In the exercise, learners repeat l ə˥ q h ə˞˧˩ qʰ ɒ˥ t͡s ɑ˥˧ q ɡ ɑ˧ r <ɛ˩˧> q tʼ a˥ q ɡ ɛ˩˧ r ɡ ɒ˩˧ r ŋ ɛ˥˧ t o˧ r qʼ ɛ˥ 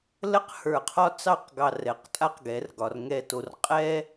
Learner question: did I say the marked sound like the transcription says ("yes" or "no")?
yes